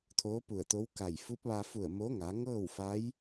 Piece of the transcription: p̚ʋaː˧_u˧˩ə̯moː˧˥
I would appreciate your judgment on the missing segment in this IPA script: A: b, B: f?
B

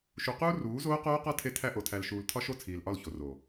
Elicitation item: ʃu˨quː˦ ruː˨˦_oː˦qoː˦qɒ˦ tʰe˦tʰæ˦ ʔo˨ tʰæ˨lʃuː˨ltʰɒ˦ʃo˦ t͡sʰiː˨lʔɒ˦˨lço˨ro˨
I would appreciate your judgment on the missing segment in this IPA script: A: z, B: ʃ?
A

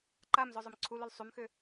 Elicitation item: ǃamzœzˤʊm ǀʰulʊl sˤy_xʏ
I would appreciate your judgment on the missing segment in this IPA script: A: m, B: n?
A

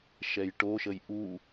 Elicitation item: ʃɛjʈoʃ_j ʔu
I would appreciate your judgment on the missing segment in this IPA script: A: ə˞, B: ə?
B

